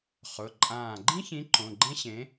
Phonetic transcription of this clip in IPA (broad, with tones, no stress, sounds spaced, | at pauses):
χ ʊ˩˧˩ ǃʼ ãː˧˩ ɡ͡ǃ ĩ˥ ç ĩ˨˥ ǃ õ˩˧˩ ɡ͡ǃ ẽ˥ ɕ ẽ˨˥